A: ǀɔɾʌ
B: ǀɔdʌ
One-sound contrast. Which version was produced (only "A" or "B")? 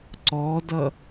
B